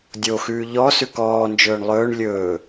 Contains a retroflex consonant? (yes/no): yes